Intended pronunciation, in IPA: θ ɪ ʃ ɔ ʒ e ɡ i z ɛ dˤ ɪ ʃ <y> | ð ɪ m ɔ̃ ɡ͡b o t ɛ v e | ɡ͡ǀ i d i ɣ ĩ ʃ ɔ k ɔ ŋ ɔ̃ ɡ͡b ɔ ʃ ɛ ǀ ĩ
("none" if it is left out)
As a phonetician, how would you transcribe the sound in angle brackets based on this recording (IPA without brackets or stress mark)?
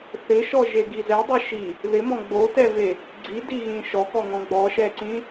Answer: i